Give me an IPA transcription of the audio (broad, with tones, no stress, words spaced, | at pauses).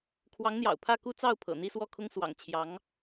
kʰwɑ˧˥ŋn̪jɑ̰˨˩ʊ̯ pʰä˥˩ku˥t͡sɑ˥˩ʊ̯pʰɤ̰˨˩ n̪i˥˧swɔ˥˩kʰʊ˥ŋ swɑ̰˨˩ŋt͡ɕʰjɑ˧˥ŋ